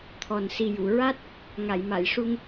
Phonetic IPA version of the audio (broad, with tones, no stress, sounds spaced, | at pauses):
t̪ʰ ɔ˨˩ n s i˨˩ j u˨˩˨ ɹ a˦˥ t̚ | ŋ a˨˩˨ j m a˨˩˨ j ʂ u˧ ŋ